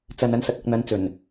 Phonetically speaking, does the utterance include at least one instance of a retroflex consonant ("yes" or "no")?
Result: no